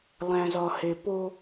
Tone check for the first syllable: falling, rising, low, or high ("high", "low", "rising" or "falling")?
low